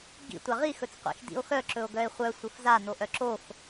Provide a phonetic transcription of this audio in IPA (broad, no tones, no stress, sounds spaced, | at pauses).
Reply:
ɡ ḭ tʷ a ʁ i x ɵ t͡s qʷ ḭ x d ḭ o̯ x œ ǁ ɵ o̯ ɡ œ e̯ χʷ œ sʷ ɘ f z a n o ʔ œ ǁ o x